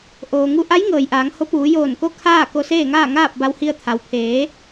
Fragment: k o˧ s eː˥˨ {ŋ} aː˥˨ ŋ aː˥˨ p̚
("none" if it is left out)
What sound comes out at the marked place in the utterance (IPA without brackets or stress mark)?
ŋ